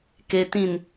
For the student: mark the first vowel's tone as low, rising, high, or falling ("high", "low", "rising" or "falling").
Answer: low